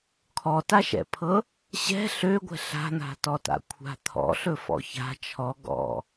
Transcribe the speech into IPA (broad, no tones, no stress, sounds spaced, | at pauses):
kʰ ɔ t a ʃ ɛ̰ pʰ ɤ | ɕ ɛ̤ ɬ ø ɡʷ ɛ̤ ɬ a̤ n̪ a̤ t ɔ t a̰ kʷʰ a̤ t̪ʰ ɔ̰ ɬ ɵ f ɔ̰ ç a̤ t͡ʃʰ ɔ ɡ ɔ̰